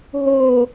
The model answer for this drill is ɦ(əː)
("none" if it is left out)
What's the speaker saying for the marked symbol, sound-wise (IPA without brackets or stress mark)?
ʊː